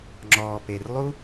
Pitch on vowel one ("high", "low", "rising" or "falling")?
low